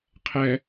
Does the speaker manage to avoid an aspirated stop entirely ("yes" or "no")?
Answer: no